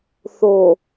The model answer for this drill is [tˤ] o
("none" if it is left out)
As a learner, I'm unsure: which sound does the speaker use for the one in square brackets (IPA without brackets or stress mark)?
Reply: θ